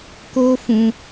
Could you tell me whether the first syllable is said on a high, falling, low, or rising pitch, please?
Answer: high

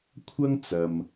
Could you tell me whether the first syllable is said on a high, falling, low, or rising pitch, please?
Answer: high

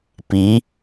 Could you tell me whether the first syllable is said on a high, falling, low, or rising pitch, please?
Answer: rising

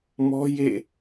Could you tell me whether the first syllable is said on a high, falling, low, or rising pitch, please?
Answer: high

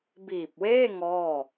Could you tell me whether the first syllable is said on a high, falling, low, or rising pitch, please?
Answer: low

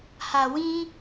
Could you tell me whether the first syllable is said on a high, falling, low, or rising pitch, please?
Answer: low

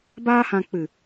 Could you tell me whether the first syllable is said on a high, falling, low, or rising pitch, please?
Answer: high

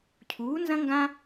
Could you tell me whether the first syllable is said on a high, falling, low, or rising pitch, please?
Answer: rising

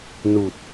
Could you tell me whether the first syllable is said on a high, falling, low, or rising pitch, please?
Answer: low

